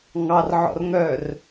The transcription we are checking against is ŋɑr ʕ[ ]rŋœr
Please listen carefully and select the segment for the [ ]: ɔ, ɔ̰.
ɔ̰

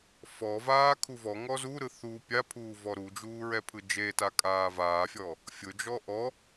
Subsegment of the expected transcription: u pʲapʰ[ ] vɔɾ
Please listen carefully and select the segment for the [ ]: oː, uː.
uː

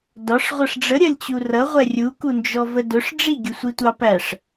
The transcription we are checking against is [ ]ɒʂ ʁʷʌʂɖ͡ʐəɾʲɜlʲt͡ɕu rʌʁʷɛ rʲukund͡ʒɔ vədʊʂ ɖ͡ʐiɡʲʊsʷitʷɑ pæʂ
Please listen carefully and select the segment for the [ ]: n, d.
d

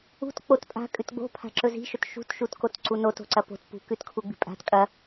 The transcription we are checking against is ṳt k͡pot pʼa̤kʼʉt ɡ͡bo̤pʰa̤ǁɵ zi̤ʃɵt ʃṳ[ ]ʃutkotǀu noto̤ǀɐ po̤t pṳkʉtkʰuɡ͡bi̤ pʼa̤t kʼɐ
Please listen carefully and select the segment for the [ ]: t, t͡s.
t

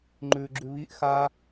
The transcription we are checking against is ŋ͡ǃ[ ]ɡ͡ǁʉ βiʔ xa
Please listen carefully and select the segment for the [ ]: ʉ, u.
ʉ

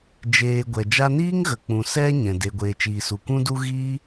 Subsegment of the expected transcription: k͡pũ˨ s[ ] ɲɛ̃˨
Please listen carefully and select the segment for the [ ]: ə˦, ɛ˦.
ɛ˦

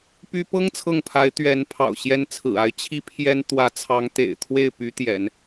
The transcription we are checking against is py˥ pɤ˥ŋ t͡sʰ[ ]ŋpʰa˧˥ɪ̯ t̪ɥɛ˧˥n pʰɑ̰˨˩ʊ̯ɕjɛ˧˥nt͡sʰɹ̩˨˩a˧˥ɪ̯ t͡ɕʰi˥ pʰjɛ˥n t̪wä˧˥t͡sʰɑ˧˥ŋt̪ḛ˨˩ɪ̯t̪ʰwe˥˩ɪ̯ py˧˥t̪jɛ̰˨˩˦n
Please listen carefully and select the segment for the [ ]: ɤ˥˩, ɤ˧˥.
ɤ˥˩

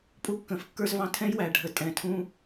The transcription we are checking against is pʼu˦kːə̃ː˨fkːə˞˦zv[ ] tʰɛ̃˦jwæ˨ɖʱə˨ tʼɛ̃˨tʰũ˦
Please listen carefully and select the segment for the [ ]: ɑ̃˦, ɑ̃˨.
ɑ̃˦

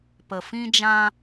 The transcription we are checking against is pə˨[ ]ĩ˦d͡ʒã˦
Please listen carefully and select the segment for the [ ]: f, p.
f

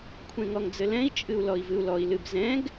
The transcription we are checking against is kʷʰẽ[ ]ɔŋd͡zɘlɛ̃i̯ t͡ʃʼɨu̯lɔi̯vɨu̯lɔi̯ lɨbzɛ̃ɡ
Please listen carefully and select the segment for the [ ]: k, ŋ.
ŋ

